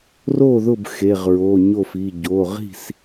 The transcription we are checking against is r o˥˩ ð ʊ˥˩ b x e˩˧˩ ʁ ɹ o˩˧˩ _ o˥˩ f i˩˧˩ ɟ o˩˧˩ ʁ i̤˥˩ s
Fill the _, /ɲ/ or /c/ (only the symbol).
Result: ɲ